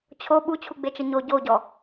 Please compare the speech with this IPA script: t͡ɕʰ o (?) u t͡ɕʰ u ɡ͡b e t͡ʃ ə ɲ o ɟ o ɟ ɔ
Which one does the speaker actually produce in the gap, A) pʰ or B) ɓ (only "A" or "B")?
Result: B